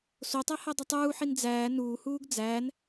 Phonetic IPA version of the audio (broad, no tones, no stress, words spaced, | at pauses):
sotˤæhædˤe tˤuːħin d͡zæː nuːhuːɡ d͡zæːn